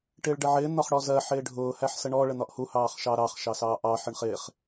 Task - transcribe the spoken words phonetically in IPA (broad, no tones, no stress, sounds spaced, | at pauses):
ʈ ɪː ɭ ɖ ə ʕ ɪː n̪ ɒ χ ɽ ɔ z ɜ ħ ɪː ɖʱ ʊː h æ ħ s ə ɳ ɔ ɭ ə n̪ ɒ ʔ h u h ɑː χ ʃ ɑ ɾ ɑ χ ʃ ɑ s ɑː ʔ ɑ ħ ə ɳ χ ɪː χ